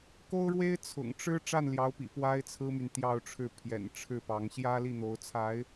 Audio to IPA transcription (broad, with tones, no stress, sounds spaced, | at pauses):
k o˥ ʊ̯ ɻ w e˥ ɪ̯ t͡sʰ ʊ̰˨˩ ŋ ʈ͡ʂ ɻ̩˥ ʈ͡ʂ a˥˩ n l j ɑ˧˥ ʊ̯ p ḭ˨˩ p w a˥ ɪ̯ t͡sʰ ɹ̩˥ m y˨ n t̪ j ɑ˥˧ ʊ̯ ʈ͡ʂʰ ɻ̩˥˩ pʰ j ɛ̰˨˩ n ʈ͡ʂʰ ɻ̩˥˩ p ɑ˧˥ ŋ ɕ j ä˥ l i˥˩ n̪ o˧˥ ʊ̯ t͡sʰ a˧˥ ɪ̯